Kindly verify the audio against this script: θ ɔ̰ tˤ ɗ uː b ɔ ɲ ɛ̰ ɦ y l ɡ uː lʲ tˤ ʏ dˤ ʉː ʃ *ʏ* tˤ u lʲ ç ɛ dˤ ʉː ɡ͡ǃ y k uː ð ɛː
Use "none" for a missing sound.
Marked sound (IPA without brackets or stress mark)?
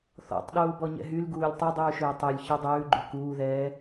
ʏː